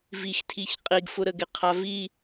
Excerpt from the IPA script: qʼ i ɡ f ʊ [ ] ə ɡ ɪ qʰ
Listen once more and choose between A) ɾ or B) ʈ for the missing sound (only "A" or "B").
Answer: A